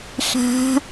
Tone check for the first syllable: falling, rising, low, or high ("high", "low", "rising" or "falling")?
rising